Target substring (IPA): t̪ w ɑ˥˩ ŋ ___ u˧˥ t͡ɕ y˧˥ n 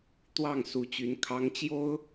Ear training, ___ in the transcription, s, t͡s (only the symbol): s